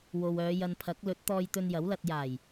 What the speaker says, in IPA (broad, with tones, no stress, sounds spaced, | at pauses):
w o˨ w œː˨˧ j ɐ˧ n pʰ ɐ˨˥ k̚ l ɵ˨˥ t̚ t̪ ɔː˧ j t̪ ɵ˧ n j ɐ˨˥ w l ɐ˧ t̚ j aː˨˩ j